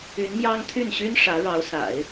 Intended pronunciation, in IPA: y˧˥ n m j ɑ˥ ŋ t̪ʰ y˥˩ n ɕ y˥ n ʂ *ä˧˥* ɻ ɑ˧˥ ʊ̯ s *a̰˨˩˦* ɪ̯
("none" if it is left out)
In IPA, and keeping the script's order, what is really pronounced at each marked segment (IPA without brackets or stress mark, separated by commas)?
ä˧˥, a̰˨˩˦